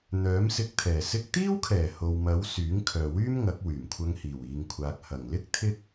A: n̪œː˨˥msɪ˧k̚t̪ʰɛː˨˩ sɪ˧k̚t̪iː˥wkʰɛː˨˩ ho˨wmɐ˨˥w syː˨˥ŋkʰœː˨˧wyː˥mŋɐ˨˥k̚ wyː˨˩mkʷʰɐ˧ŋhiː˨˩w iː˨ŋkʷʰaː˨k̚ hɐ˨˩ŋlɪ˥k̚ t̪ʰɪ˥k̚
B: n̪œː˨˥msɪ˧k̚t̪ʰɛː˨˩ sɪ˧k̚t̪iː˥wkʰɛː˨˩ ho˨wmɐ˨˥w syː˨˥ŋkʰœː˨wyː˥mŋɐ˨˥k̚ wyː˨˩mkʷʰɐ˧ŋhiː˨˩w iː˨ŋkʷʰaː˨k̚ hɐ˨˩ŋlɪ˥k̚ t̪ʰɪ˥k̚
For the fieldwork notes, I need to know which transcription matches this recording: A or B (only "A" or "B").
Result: B